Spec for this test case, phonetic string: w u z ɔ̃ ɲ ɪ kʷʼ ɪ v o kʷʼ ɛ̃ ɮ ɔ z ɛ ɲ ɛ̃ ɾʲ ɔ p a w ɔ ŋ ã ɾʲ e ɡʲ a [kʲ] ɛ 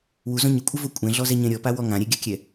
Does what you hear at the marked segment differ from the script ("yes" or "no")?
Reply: no